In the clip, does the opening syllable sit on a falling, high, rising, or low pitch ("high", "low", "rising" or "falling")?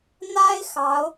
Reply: high